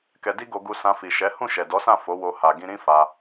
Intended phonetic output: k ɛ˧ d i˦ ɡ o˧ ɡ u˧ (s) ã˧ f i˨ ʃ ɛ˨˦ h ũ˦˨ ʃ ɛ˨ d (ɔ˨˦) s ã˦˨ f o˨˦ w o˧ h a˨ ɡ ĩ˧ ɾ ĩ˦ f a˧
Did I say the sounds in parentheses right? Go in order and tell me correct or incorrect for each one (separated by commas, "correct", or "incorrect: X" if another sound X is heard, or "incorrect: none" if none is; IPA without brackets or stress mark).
correct, correct